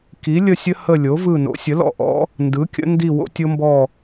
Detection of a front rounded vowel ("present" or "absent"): absent